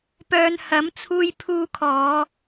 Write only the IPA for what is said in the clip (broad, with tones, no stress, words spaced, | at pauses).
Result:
pœː˧n hɐ˨˥mt͡sʰuː˧j pʰuː˧kʰɔː˨˧